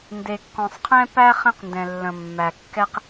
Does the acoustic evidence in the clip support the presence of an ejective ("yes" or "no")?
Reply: no